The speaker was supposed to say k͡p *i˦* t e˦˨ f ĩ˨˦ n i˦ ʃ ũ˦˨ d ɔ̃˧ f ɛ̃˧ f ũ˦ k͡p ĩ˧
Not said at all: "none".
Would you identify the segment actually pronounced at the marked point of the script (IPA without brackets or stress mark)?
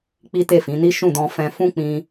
i˦